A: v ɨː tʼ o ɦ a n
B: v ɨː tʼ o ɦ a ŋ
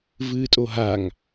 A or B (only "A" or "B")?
B